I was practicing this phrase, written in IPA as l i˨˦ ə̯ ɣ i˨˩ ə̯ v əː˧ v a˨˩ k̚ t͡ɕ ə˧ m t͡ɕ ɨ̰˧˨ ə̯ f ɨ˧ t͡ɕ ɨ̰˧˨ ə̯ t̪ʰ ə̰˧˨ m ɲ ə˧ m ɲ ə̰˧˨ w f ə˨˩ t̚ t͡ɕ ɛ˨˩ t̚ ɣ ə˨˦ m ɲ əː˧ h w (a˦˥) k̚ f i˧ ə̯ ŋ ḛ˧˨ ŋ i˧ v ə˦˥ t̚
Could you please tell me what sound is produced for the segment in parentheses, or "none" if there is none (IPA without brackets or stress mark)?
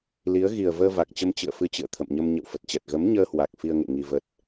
a˨˩